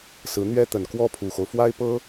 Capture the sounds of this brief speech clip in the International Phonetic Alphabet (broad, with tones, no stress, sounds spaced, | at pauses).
s ɹ̩˧˥ n̪ ɥ ɛ˥ t̪ ə˨˩ n k w ɔ˥ pʰ u˨˩ x o˦ ʊ̯ f w a˥ ɪ̯ p ɤ˥